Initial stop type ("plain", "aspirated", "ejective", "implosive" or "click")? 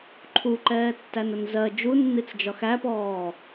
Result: click